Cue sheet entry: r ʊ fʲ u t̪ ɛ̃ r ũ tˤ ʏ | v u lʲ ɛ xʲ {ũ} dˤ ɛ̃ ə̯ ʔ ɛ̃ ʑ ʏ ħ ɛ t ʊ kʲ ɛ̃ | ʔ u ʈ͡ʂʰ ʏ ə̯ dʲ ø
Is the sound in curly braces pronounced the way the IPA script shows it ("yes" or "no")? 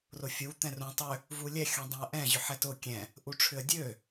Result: yes